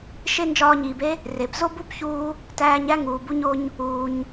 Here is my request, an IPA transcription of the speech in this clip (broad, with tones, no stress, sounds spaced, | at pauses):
ʃ e˥ n d͡ʒ ɒː˧ ɲ iː˩ b e˥ | r e˩ b z o˥ b u˥ b ç uː˧ | t æː˧ ɲ æ˥ ŋ uː˩ b u˧ ɲ o˧ ɲ | uː˩ ɲ